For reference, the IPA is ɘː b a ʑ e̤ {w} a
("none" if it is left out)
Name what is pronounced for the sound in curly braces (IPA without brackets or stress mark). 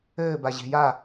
j